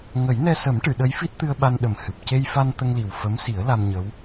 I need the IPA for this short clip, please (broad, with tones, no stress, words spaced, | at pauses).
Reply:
ŋə˨˩˦jnɛ˧sə˨˩˦m ʈɨ˨˩˨ɗə˧˥jfi˦˥t̚t̪ɨ˧ə̯ ɓa˧nɗə˨˩mhɨ˨˩p̚ ce˧jfa˧n t̪ə˧ŋli˨˩w fə˧˥msi˨˩˦ə̯ la˧mɲə˧˥w